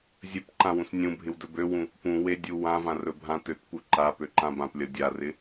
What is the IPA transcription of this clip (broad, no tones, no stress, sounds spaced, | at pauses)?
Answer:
zʲ ɵ p ǃ ã w ũ s nʲ ũ bʱ ɪ w d ɵ b ø w ũ | p ũ w e dʲ u w ã v ã r ɵ bʱ ã t ø t p u ǃ a p ø ǃ ã b ã p lʲ ʌ dʲ a r ɪ